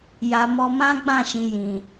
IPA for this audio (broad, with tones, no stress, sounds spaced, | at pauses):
j a˨ m ɔ˧ m ã˦ ɡ͡b ã˦˨ ʃ ĩ˨ j ĩ˨